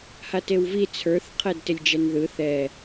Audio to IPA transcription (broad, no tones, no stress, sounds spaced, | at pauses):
h a t e w v i t͡sʰ ə˞ θ qʰ ɛ d t ɪ lʲ d͡ʒ ɛ n ð ɯ θ ɛ